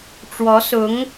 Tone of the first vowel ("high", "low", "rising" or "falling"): rising